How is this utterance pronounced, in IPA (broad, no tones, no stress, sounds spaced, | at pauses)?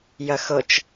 j ɐ x ɤ t͡ʃ